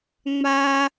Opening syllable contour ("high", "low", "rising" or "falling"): high